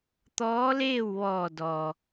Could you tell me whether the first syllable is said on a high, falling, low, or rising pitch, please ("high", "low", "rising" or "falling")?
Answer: rising